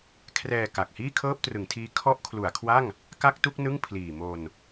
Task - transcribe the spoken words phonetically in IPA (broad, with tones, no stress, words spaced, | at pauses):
kʰrɛː˧ka˨˩k̚ hiː˥˩kʰɤː˥˩p̚trɯ˩˦ŋtʰiː˦˥ kʰɔ˦˥ʔkʰlu˩˦a̯kʰwa˥˩ŋ | ka˥˩k̚tu˥˩k̚ nɯ˥˩ŋpʰliː˨˩ mo˧n